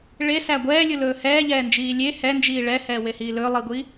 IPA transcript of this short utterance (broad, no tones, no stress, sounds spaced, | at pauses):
ɭ e s æ ɡʷ ɛː lʲ u l ɵː h ɛː ʎ ɛː n d͡ʒ iː lʲ e h ɛ n d͡ʒ iː ɭ ɛ h ɛː w e h iː l ɵ lˠ i ɡʷ i